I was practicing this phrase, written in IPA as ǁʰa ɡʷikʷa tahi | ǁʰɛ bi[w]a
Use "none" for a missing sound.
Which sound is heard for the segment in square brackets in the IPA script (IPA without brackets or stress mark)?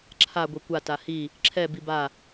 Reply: b